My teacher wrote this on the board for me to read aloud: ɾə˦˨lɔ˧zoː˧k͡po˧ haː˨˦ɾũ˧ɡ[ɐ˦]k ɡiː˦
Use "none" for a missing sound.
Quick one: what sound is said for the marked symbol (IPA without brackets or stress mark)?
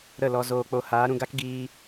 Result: a˦